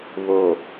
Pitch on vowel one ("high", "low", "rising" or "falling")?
low